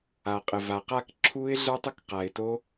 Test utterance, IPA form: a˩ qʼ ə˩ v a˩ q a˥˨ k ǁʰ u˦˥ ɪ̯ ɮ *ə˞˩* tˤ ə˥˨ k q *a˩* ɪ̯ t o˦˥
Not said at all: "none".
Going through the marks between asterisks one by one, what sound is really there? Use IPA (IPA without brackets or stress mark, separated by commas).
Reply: ə˞˦˥, a˩